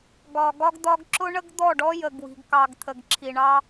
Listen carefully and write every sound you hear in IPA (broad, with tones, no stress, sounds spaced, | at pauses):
ɡ ɒ˨ ɡ ɒ˦ ɡ d̪ ɒ˦ ɡ ǁ ʊ˦ ɳ ə˦ ɡ d̪ ɔ˦˨ ɖ ɔ˦ j ə˨ ɡ w i̤˨ ɡ k ɑ˨ ɡ t̪ʰ ə˨ ɡ ǁʰ i˨ ɳ ɑ˦